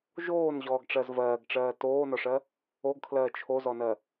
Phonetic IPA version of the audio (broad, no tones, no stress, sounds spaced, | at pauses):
ʒ oː n ʑ ɔː ɡ ʈ͡ʂ ɜ z v ɜː ɡ ʈ͡ʂ ɜː t oː n ɔ ʂ ɜ | o ɡ kʰ l ɜː t͡ʃʰ o z ɔ n ɜ